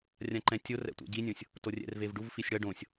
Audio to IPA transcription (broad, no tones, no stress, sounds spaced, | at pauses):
rʲ ã ǃ ɛ̃ tʲ o r ɛ̰ tʷ ɛ̰ ɟ i nʲ õ sʲ | t o rʲ ɛ̰ r v e v ɖ u v f i sʲ ɽ ʌ ɖ õ sʲ